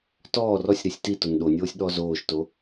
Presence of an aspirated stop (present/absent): absent